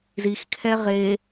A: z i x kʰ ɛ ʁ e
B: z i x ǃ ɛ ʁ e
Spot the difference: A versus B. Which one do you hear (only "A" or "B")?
A